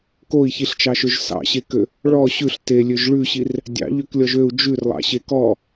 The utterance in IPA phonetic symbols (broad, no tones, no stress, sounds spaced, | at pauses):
k o i̯ ç i ɬ t͡ʃ ɑ ʃ ø ʒ s ɑ̰ ɕ e k ø | ɭ ɔ ɕ ʉ ɬ t e lʲ ø ʒ ɭ ʉ ɕ i r | dʲ ɑ̰ ʎ ø k lʲ ɔ ʒ ø u̯ d͡ʒ ʉ r lˠ ɑ̰ ɕ e k ɔ